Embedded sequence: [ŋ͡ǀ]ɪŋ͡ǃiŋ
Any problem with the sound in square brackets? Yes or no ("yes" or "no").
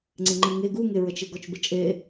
no